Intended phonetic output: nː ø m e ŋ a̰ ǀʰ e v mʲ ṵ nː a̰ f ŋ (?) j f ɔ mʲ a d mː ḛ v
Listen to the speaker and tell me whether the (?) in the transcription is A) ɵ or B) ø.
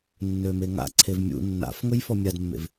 A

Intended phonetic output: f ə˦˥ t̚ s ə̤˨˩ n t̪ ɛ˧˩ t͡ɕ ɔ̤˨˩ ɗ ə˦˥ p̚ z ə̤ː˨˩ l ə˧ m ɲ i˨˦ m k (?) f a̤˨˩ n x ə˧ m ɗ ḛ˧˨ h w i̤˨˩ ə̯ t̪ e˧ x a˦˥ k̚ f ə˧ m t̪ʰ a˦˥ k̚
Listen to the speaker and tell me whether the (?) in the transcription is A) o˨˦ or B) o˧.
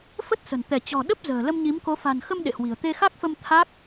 A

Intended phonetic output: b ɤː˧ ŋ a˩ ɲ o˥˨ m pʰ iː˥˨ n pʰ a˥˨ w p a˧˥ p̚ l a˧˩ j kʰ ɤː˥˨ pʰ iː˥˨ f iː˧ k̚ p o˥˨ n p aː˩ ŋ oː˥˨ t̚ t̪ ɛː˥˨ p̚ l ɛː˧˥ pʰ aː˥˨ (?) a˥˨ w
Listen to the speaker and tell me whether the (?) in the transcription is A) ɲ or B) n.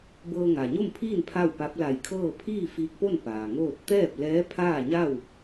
A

